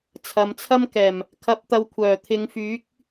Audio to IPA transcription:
t͡sʰɐ˨mt͡sʰɐ˥mkɛː˨˩m | kʰɐ˨˥p̚t̪ɐ˨w kʷʰœː˨˩ t̪ʰɪ˨˧ŋfyː˨˥k̚

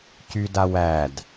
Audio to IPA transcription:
cyda wæd

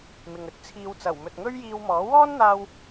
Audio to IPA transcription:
mɪ˨ŋ ɵ˨˥t̚t͡sʰiː˨˧wt͡sɐ˨˩w mɵ˨t̚ ŋɵ˥ɥjiː˧wmɔː˨˥ wɔː˥nn̪aː˧w

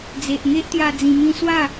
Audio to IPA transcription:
d͡ze˨ʔŋe˦ʔt̪ja˧ d͡zĩ˧mĩ˦ swa˥˧

